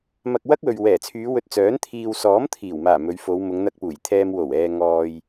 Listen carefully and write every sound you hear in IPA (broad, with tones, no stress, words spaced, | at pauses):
mɐ˧k̚wɐ˥k̚wɵ˨ɥ wɛː˨˩t͡sʰyː˨˧ wɵ˧t̚t͡sœː˨˥n t̪ʰiː˨wsɔː˨˥mt̪ʰiː˨˩wmaː˨˩ mɵ˨˧ɥfo˨˧w mʊ˨˧ŋn̪ɐ˧k̚puː˨˩jt̪ʰɛː˧m wo˨˩wɛː˨ ŋɔː˧j